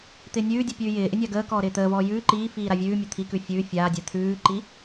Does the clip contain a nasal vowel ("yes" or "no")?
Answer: no